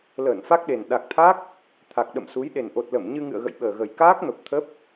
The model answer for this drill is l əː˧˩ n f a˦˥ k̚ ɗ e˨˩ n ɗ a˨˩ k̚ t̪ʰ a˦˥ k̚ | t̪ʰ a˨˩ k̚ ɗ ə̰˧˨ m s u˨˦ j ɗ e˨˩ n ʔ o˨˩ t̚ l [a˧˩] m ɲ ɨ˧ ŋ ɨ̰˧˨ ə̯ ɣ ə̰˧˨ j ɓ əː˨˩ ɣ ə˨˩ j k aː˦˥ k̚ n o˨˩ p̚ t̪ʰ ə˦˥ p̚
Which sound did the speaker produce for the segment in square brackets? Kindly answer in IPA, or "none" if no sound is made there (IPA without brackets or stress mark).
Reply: ə˧˩